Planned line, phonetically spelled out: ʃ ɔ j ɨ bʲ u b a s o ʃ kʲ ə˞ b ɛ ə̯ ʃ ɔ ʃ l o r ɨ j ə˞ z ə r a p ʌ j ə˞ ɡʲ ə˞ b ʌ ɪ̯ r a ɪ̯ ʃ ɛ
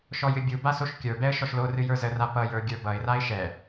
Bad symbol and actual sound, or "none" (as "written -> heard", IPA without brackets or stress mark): none